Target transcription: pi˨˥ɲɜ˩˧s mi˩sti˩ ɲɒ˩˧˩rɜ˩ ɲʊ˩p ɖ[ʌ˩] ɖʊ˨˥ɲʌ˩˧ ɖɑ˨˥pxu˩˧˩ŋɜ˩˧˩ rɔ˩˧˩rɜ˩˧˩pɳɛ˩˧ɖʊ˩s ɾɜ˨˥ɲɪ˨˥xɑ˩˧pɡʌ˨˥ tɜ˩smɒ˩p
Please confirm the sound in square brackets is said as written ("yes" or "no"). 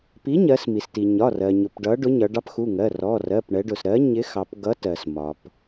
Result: no